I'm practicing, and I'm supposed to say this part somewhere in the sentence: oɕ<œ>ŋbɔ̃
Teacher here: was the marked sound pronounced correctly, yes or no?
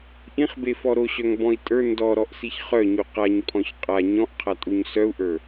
yes